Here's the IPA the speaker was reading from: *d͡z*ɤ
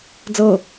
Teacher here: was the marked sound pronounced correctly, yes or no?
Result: yes